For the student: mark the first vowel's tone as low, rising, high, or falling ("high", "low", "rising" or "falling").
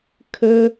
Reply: low